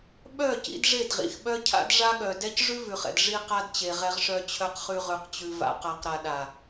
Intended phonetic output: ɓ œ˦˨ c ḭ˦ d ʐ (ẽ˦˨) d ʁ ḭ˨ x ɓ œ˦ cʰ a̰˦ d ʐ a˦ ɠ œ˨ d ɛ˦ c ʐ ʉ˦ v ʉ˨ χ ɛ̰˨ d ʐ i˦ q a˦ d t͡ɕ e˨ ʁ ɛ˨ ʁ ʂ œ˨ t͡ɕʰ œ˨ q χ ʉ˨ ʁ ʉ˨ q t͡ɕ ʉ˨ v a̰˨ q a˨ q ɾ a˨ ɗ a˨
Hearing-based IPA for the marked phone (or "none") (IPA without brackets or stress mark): e˦˨